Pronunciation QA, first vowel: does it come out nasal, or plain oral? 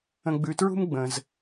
nasal